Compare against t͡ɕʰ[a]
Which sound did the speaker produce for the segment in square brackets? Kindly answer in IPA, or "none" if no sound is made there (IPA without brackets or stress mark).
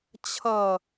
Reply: ʌ